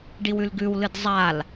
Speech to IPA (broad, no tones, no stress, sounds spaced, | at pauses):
ɖ i w ʉ l ɡ ʉ w l ɨ d zˤ a l